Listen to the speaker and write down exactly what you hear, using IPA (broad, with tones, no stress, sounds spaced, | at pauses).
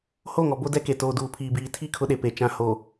h o˦˨ ŋ ɔ˨ b o˦ d ɛ˦ k e˨ t oː˨ d uː˨ pʰ iː˨ b iː˨ tʰ i˦˨ kʰ ʊ˦ ɗ e˨ p e˨ t͡ʃ ã˨ h o˨